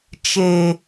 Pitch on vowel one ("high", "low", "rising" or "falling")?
low